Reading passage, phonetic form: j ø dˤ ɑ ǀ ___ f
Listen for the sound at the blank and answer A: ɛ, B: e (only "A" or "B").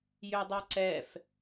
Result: A